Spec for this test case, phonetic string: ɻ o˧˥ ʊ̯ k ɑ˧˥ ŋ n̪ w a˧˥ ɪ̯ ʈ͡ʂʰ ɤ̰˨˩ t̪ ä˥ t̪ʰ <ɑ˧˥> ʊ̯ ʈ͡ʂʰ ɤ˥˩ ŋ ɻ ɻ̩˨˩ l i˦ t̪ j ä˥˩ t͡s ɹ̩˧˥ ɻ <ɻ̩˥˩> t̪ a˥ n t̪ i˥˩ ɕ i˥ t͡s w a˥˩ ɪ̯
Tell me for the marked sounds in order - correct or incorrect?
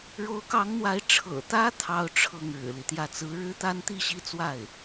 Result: incorrect: ɑ˥˧, incorrect: ɻ̩˥

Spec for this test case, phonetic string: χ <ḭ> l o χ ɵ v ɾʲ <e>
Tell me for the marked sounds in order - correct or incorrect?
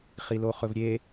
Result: incorrect: i, correct

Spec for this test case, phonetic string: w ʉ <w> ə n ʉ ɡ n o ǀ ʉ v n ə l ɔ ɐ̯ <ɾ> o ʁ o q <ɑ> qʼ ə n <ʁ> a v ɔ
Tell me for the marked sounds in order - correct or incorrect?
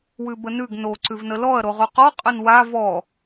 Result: incorrect: b, correct, incorrect: ɔ, incorrect: w

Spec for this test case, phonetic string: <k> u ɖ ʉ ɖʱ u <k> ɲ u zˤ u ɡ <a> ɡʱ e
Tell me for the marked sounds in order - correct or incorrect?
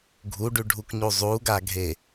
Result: incorrect: ɡʱ, correct, correct

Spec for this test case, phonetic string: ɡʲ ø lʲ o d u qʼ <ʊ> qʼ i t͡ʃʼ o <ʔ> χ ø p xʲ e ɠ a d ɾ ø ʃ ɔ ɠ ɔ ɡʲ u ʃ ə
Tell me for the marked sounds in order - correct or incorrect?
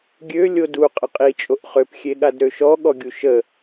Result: incorrect: ə, correct

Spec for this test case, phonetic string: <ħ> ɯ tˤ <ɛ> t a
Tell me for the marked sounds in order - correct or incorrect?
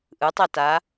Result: incorrect: ʔ, correct

